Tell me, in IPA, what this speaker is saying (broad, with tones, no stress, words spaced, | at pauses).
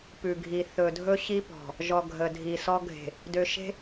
pʉ˨ɡʱi˨ θɵ˨dʱɵ˦ɕi˦pɔ̤˨ | ʒɔ˨ ɡʱə˨dʱi˨sɔ˦ ɡʱe̤˨ | dø˨ʃe̤˦